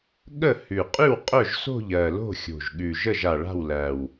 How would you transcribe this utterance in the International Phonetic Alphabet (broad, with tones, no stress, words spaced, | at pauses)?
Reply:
ɠə˥˨ hʉ˨˩qʼʉ˥˨w qʼœ˥˨ʒso̤˥˨ʎ ɜ˨˩ lo̤˥˨xʲo̤˨˩ʒɠʉ˨˩ʒə˥˨ʒ a˨˩ɭa̤˥˨wlæ˨˩w